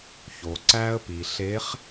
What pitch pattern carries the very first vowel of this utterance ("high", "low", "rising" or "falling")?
low